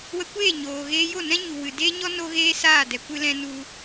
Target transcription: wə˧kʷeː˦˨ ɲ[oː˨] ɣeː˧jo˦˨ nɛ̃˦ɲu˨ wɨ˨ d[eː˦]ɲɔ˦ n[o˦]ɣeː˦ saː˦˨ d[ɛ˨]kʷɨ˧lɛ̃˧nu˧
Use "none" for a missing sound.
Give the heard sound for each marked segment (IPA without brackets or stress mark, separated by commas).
oː˨, eː˦, o˦, ɛ˨